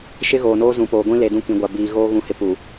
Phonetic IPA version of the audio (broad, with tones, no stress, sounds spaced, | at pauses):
ʃ ɪ˦ ɣ oː˨ n oː˦ z ũ˨ p oː˨ ɡʷ ĩ˦ l e˨ d ũ˦ k ĩ˨ ɡʷ a˨ b iː˨ ɣ oː˦ ɣ ũ˨ h ɪ˨ p u˨